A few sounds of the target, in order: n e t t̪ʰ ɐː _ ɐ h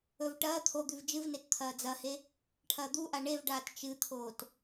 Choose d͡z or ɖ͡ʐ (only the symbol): d͡z